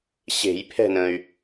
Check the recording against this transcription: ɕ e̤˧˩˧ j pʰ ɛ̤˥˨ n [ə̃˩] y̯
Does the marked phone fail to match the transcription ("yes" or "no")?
no